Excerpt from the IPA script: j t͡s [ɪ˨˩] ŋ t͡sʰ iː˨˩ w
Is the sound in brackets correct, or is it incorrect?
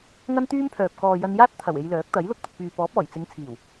incorrect